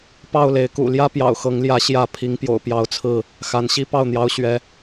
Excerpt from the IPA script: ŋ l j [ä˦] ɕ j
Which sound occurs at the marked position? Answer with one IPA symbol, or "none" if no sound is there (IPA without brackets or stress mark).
ä˨˦